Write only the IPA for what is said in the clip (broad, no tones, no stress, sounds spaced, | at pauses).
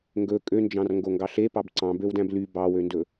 ŋ ɡ ɵ kʼ ø n d͡ʒ ɑ̃ r ŋ ɡ o ŋ ɡ ɑ ɬ e p ɑ b ǀ ɑ̃ b ø w d æ̃ b l y b ɑ w ø n d ɵ